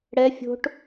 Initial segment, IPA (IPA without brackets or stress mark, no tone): ɽ